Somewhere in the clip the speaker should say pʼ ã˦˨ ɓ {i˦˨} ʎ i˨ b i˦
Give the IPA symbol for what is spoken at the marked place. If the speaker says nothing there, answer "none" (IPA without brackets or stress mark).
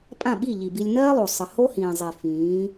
i˦˨